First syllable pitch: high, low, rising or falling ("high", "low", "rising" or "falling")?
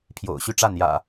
low